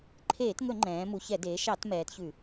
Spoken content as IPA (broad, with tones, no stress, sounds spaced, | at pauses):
ǃʰ eː˧˩˧ t ŋ ɵ˧˩˧ ŋ͡ǃ ɛ̃ː˩˧ m u˩˧ ç ɛ˧˩˧ d eː˩˧ ʃ ɑ˧˩˧ t m ɛː˩˧ t ç ʉ˧˩˧